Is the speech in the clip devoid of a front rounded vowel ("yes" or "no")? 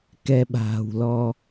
yes